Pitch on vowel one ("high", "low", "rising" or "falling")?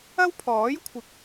high